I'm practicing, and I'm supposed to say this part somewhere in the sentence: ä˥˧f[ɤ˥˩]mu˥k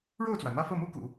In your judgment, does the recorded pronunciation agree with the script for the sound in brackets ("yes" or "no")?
yes